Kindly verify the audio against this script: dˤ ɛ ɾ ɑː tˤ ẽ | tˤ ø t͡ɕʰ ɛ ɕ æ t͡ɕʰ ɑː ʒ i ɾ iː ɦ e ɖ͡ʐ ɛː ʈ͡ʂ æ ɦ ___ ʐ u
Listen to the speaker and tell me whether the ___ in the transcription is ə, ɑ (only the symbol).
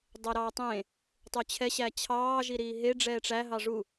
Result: ɑ